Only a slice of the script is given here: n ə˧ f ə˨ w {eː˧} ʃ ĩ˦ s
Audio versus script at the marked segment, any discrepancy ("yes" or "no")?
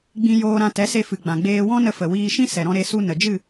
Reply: yes